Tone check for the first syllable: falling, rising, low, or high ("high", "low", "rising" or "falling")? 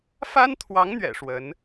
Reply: high